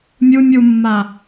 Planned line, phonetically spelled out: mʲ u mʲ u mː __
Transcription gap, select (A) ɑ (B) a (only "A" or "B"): B